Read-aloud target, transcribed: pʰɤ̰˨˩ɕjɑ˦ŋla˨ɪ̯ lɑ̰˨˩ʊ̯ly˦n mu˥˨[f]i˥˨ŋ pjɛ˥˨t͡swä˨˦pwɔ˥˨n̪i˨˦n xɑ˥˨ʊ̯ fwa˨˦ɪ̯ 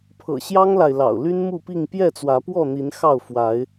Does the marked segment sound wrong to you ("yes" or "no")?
yes